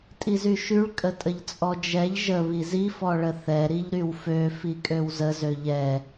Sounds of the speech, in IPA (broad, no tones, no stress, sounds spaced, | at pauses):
tʼ i z y ʃ y ɭ kʼ ə tʼ ə ʎ t͡sʼ ɔ d͡ʒ ɛ ʎ ʒ ə β i z i f ɔ ɭ ə θ ɛ ɾ i ʎ ɾ y w f ø f i kʼ ø w z ə z ø ʎ ɛ